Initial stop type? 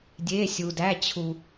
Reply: plain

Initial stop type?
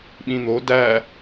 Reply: implosive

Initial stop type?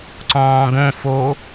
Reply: click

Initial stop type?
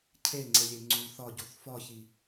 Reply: aspirated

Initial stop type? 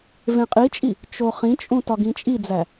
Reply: ejective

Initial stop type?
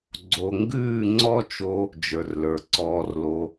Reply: click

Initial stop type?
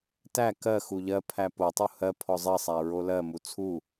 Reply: plain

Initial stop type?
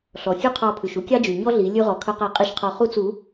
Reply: aspirated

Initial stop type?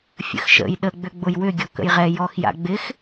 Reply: implosive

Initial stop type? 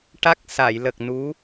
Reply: plain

